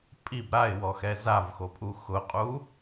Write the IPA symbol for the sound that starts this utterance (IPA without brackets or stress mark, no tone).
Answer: pʼ